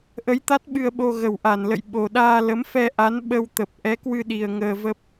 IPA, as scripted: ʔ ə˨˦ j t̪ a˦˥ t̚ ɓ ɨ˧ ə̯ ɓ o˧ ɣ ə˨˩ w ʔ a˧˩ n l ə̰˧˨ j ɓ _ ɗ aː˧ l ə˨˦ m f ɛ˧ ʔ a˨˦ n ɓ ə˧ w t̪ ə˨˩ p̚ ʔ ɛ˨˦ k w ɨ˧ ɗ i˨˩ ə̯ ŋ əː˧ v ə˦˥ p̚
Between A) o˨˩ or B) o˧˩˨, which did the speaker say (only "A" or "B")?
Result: A